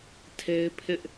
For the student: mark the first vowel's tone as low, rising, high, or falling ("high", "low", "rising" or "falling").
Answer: high